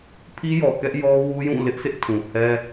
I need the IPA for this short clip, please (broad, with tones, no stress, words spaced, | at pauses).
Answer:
pʰi˦jɔ˨kɛ˦ʔjɔ˦ wu˦jũ˦˨lɪ˦ʔsʰɪ˦ʔ tʰũ˨hɛ˦